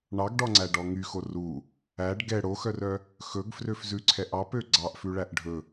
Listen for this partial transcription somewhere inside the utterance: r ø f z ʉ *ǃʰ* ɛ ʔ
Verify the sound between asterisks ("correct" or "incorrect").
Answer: incorrect